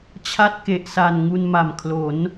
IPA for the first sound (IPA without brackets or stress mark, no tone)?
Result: t͡ɕʰ